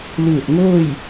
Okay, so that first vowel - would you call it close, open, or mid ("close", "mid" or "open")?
close